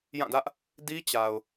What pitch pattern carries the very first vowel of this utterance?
falling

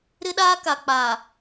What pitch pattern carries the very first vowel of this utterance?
high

